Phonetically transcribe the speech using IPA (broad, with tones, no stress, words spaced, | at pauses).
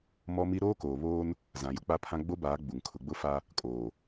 mɔ˦mi˦ ɾoː˦koː˨βoː˦n | zã˨jʊ˦k͡pa˦pʰã˦ ɡ͡bo˦baː˨˦ ɡ͡bu˨ŋ kʰʊ˨ɡ͡bʊ˦fa˦ | kʼoː˨